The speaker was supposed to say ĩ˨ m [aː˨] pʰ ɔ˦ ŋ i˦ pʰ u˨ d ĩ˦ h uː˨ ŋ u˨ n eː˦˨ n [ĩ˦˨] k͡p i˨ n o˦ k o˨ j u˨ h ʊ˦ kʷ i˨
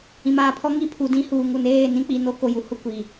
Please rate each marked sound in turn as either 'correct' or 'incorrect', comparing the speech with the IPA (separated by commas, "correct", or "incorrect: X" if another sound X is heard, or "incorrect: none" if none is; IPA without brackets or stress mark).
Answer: correct, incorrect: ĩ˦